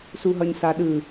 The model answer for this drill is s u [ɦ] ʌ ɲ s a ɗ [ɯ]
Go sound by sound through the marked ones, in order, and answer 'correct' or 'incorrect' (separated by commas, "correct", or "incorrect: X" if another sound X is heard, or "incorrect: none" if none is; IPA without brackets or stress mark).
correct, correct